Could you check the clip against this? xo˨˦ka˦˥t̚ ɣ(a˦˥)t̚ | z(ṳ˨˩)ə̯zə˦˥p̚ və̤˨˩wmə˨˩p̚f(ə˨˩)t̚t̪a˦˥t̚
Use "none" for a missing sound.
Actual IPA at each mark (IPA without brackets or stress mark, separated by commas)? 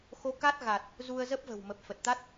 a˨˩, u˧, ə˨˩